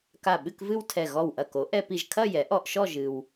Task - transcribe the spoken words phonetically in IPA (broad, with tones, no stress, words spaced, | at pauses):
ka˧˩ɓɨ˥˧kvɨ˥˧wtʰɛ˧˩ ɣɔ˧˩wʔɐ˧˩ko˩˥ ʔɛ˧pi˧˩ʒkʰɐ˥˧ jɛ˩˥ʔɔ˧ʔʃɔ˥˧ ʒɨ˧w